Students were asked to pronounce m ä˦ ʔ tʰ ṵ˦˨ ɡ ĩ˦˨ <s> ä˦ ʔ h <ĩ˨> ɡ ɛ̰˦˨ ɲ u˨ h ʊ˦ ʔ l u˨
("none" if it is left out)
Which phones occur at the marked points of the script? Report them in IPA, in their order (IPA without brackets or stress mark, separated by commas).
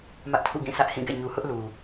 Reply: s, ĩ˦˨